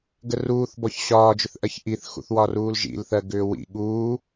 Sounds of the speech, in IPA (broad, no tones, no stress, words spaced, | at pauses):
ɡəruːθbɔç ɕɒːd͡ʒʏθʔɜç ʔiθxṵθwɒ ruːlʒḭlθɜ ɡʏːwḭ ɠuː